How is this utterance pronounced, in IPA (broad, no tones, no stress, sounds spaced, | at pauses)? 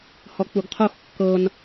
h ɔ k͡p u ɡ qʰ o x kː ɤ n